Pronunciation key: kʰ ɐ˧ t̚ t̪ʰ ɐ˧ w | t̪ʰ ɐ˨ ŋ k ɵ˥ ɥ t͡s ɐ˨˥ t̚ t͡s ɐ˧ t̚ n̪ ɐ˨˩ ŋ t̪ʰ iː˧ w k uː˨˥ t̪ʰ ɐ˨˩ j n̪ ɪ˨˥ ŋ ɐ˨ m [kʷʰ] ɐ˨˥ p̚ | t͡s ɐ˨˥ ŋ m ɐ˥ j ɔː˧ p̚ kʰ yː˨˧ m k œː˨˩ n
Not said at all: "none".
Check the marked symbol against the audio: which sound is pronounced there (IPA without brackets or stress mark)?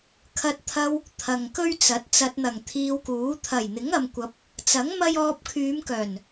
kʷ